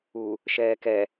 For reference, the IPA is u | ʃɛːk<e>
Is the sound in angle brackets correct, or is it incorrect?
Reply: incorrect